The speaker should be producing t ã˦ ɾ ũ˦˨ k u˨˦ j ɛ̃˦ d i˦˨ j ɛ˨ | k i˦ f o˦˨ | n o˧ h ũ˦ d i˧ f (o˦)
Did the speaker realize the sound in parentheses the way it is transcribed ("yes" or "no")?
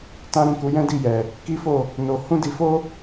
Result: yes